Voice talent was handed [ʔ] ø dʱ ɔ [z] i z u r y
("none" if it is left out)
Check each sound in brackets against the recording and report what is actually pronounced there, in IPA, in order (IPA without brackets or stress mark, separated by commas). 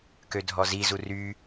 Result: k, z